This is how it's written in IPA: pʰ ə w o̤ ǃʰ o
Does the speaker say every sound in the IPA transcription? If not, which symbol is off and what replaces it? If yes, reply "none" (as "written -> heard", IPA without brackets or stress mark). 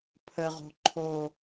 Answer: w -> ʁ